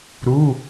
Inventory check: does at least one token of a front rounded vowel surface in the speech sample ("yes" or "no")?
no